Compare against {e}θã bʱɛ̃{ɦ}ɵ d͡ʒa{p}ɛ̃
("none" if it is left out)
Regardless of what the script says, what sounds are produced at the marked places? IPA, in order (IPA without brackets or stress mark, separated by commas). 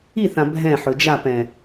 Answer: i, ħ, p